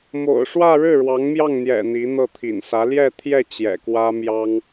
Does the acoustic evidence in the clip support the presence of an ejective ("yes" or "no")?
no